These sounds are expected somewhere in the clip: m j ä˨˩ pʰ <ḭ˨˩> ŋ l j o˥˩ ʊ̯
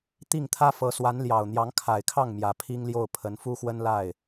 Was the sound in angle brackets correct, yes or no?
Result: no